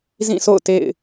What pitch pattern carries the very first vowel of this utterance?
falling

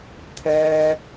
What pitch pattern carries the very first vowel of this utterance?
high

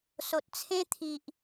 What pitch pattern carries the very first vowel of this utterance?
low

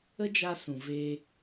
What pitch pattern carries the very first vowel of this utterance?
high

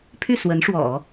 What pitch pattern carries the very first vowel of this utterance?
falling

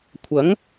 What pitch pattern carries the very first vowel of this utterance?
rising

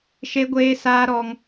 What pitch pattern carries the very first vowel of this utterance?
high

